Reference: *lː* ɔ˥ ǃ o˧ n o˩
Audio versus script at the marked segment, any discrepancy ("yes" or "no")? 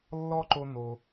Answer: no